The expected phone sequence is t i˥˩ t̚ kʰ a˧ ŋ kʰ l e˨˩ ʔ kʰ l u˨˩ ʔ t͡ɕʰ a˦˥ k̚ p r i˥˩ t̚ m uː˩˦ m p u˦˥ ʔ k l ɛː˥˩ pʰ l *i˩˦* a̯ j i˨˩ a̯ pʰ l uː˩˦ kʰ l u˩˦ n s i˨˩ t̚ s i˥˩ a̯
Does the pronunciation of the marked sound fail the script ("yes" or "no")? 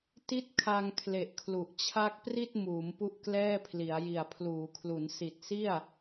no